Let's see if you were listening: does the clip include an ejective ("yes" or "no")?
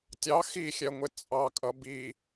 yes